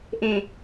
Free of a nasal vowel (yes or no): no